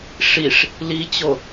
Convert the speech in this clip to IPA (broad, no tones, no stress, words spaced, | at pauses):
ʂiʂ | lit͡ɕo